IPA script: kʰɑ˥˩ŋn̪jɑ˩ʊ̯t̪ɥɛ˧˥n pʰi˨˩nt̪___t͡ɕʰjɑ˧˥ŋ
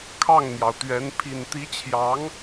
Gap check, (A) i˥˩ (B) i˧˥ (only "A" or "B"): B